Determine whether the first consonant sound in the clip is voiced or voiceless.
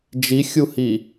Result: voiced